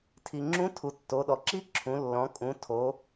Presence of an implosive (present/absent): present